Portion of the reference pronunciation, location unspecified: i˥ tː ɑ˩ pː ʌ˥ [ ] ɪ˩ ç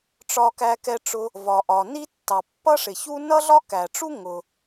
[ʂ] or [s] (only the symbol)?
ʂ